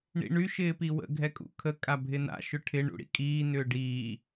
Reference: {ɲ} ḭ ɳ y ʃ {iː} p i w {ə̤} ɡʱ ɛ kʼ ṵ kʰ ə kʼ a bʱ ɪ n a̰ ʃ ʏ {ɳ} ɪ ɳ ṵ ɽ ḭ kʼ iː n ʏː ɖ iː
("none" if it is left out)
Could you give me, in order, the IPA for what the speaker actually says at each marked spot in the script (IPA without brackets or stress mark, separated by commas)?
ɳ, ɪː, ə̰, ʈʰ